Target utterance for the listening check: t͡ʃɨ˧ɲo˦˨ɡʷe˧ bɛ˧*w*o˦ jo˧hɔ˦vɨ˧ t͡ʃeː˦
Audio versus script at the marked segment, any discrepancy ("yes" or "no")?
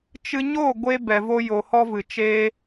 yes